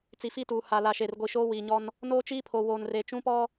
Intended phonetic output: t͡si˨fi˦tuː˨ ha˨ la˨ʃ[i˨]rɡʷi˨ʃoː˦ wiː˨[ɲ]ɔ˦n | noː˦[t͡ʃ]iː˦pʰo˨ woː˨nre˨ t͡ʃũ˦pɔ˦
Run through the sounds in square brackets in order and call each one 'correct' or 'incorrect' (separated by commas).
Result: incorrect, correct, correct